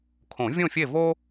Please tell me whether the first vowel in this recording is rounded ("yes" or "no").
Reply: yes